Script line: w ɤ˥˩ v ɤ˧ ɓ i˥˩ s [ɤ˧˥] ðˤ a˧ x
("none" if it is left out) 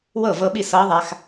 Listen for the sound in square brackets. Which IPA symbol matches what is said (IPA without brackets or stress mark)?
ɤ˧˥